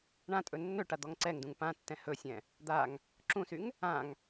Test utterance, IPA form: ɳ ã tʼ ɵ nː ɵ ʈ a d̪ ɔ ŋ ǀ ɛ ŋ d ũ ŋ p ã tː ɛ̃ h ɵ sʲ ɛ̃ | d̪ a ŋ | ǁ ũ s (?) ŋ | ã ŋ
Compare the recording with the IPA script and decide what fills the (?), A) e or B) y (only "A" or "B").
B